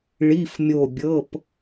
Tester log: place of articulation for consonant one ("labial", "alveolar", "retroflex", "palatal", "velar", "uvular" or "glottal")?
retroflex